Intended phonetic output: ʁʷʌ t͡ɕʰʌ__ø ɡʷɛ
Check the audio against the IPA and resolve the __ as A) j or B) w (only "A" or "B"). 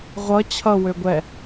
B